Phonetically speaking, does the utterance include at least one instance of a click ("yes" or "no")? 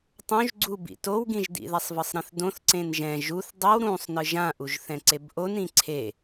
yes